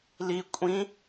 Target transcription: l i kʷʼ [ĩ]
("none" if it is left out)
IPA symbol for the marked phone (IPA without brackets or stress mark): ĩ